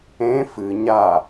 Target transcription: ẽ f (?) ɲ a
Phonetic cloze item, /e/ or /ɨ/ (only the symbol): ɨ